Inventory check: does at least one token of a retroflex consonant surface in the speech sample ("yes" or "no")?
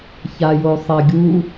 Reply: no